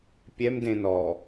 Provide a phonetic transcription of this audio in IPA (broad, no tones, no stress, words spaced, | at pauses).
pʲɛmdẽ nɔ